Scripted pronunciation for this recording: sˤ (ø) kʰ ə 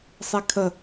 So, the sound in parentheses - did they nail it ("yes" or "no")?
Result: no